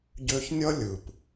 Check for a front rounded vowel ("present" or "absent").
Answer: present